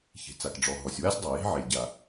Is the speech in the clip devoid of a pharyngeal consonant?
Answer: no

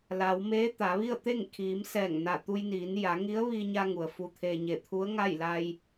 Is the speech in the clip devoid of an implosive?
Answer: yes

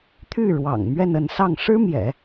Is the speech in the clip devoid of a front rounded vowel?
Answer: no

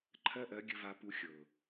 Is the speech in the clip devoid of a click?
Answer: no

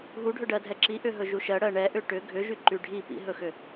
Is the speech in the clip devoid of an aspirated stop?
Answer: yes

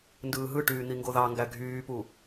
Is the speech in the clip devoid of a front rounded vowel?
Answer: no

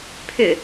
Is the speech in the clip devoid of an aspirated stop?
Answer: no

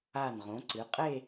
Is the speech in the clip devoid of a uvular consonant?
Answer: no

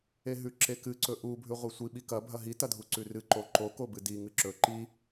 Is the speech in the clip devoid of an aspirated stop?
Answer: yes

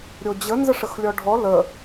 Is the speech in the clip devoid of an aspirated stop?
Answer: yes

